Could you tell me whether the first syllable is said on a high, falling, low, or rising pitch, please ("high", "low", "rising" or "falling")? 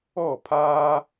falling